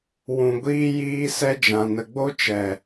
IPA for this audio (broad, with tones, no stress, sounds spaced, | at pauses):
w ũ˨ ɡʷ iː˧ j iː˧ s ɛ˧ d͡ʒ ã˨ n ə˨ ɡ͡b o˧ t͡ʃ ɛ˨